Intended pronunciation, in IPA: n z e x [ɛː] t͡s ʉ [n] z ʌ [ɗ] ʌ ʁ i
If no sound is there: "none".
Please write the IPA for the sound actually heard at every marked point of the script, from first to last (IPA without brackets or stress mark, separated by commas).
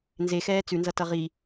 ɛː, n, t